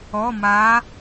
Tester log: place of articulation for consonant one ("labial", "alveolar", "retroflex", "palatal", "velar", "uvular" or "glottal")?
labial